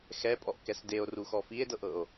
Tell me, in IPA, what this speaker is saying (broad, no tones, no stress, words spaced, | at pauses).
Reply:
xɛpʼɔʔkɛs deo̯ruxɔ fie̯dɤʔɤo̯